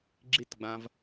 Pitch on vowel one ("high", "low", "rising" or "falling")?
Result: falling